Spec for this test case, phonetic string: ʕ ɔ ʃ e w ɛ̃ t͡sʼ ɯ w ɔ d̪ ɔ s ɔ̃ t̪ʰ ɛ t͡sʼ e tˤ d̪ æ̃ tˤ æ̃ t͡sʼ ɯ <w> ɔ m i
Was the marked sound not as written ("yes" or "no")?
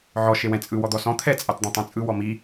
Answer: no